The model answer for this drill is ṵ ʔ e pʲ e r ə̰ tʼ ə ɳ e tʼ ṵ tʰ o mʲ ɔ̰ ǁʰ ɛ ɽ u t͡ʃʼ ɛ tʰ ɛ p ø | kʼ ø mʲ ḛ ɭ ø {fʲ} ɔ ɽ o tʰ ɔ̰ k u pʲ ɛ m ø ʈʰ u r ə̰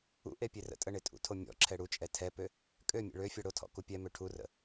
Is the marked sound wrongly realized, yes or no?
no